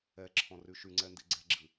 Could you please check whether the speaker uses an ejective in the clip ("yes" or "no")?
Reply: no